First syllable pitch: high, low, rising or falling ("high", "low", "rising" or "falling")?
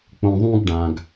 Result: low